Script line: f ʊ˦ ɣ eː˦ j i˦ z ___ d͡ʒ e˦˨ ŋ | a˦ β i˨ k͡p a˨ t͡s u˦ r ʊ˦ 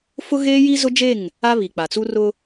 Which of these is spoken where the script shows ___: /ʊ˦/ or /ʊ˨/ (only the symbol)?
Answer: ʊ˦